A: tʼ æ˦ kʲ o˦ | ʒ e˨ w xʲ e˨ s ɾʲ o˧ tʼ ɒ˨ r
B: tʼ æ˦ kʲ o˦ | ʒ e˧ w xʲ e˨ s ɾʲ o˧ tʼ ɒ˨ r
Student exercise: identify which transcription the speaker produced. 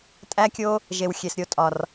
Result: A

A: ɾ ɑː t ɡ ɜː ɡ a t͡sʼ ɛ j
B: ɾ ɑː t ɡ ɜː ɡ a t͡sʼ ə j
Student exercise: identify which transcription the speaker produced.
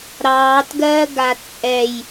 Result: A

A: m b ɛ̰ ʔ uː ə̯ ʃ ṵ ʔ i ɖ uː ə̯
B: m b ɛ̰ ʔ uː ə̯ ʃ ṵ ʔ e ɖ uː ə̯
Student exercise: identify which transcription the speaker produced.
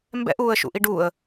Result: A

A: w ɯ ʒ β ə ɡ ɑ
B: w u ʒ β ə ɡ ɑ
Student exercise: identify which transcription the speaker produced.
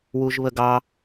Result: B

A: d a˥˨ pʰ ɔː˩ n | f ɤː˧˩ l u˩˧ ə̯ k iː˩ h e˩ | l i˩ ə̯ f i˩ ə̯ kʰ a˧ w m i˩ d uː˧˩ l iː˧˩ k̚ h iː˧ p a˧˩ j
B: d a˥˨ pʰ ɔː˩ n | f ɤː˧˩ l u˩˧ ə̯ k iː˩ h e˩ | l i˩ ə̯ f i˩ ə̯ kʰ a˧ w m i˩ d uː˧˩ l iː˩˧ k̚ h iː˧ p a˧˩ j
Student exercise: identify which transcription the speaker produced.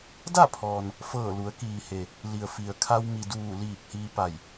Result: A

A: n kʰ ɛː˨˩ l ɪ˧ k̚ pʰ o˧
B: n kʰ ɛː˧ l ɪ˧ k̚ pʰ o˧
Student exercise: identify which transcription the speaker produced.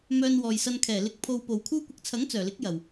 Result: A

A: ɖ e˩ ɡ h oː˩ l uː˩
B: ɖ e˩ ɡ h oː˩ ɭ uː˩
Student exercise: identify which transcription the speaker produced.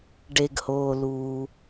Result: A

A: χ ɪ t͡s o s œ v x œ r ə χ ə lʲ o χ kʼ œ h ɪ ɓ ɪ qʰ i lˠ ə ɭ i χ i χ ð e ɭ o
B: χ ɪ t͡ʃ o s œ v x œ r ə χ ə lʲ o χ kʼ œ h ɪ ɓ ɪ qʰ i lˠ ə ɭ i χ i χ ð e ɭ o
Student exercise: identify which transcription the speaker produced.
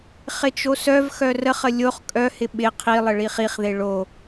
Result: B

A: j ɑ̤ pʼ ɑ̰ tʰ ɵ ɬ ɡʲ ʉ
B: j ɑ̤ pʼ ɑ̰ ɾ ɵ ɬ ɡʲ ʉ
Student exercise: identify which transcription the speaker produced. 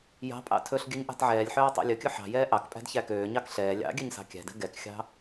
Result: A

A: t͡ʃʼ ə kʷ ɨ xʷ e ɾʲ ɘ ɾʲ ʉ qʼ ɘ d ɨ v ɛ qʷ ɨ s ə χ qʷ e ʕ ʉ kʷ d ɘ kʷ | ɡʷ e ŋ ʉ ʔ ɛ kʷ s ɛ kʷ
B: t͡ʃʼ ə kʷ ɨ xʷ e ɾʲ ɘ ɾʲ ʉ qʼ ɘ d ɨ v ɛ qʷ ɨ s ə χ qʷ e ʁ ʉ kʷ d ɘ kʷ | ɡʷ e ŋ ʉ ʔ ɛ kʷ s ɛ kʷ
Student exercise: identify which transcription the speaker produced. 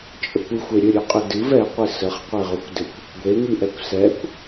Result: B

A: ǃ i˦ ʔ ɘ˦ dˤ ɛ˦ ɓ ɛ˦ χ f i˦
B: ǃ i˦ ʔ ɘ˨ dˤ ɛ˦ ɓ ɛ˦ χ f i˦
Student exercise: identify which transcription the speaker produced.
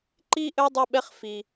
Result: A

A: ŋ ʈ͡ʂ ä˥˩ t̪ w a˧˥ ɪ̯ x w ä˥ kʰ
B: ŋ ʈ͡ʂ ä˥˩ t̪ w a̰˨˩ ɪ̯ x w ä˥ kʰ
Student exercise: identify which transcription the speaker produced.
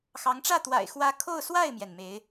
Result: B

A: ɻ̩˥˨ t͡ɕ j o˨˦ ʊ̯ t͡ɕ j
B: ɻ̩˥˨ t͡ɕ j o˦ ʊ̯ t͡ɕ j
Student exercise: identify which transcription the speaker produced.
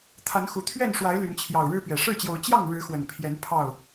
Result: A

